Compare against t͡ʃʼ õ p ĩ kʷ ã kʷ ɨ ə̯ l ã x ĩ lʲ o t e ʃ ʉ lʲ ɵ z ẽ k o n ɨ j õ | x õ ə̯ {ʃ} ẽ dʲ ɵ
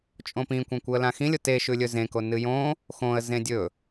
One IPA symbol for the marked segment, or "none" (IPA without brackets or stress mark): z